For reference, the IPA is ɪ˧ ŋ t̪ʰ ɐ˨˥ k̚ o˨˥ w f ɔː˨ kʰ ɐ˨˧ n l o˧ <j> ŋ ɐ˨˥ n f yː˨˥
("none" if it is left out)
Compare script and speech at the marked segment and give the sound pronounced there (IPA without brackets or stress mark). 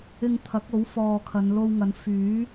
w